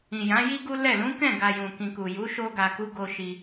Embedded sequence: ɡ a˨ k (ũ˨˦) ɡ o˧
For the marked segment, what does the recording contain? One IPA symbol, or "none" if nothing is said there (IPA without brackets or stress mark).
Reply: u˨˦